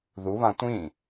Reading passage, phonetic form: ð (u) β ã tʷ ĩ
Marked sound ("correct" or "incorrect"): correct